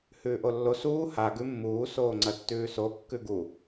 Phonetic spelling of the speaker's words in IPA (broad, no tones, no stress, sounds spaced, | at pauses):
h ʉː ʔ o lː o s uː h a ɡ ʉ mː uː s oː ŋ͡ǀ ɐ tː ʉː s o kː ʉ ɡ u